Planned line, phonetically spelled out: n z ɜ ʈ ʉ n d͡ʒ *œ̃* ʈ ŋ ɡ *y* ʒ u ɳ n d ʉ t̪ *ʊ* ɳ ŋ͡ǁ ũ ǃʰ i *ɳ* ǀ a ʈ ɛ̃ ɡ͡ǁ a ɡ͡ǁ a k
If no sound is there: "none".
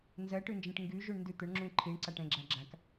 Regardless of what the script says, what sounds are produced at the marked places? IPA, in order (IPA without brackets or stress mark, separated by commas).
ɛ̃, y, ʊ, ɳ